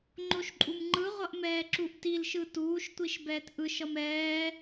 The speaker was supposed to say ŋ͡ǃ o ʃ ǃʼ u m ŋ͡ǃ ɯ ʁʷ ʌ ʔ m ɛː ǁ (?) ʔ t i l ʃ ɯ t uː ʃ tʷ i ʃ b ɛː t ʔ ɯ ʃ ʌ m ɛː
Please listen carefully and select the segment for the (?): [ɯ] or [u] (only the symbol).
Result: u